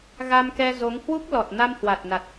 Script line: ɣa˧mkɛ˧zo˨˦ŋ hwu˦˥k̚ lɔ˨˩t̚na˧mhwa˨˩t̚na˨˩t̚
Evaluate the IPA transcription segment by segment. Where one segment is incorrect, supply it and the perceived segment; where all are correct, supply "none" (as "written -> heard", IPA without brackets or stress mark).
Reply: none